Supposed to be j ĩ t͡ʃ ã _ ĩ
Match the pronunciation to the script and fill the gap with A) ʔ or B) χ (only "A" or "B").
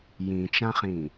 B